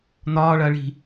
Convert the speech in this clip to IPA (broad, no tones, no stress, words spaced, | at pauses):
n̪ɒː ɭɐːɭi̤